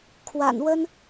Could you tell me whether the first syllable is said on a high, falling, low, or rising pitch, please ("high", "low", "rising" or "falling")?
low